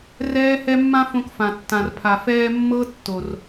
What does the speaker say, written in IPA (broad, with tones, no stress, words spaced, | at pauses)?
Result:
rɛː˦hɛ˦ mːã˦fõ˧kfã˨ tːã˨rpʰa˨fɛː˧ mːɤ˦ tːo˨r